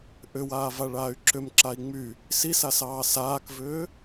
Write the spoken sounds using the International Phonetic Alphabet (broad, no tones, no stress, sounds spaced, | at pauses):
ʔ ʏ w aː v a ɭ aː y̯ ǁ ʏ m ǁ a i̯ ŋ͡m y | s i s a s ɑː s aː k v ʏː